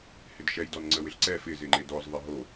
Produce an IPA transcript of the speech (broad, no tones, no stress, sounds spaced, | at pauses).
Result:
h ɪ d ʃ ɛ j d ɔ n ŋ͡ǀ ə w ɪ ɬ ǀ ɛ f ɪ z ɪ ŋ͡ǃ e d ɔ z ðˤ ɪ ɦ o